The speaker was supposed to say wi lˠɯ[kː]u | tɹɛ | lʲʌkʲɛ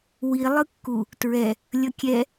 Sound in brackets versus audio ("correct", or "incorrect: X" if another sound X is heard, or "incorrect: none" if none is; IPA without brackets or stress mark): correct